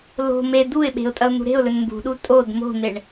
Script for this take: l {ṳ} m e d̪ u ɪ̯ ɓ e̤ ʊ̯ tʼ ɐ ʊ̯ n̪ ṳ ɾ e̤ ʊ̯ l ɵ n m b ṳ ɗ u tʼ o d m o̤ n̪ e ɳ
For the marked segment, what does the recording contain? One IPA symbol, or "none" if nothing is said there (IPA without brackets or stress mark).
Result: o̤